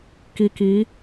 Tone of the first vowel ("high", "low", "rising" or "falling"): low